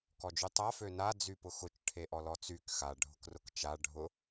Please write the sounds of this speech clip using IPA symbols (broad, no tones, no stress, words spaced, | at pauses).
kɔd͡ʒytˤa føna d͡zypʊxʊt͡ʃ ʈʰeʔɔlɔt͡syk xa ɖʱʊkrʊkt͡ʃa ɖʱʊ